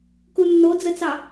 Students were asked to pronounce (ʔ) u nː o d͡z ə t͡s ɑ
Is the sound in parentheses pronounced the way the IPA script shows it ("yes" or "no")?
no